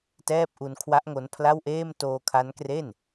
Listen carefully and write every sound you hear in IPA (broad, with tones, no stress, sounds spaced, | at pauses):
t ɛː˥˩ p̚ ʔ u˧ n kʰ w a˦˥ ʔ ŋ o˦˥ n pʰ l a˥˩ w ʔ eː˥˩ m t oː˧ kʰ a˦˥ n k r e˥˩ n